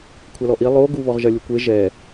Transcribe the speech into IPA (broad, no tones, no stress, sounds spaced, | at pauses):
kʷʰ a l ɔ ʔ i lˠ o ɡ u β ɔ ʁ ʒ ɐ lʲ u kʷ e ʒ ɛ